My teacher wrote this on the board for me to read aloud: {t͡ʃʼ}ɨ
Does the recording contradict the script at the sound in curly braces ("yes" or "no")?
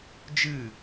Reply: yes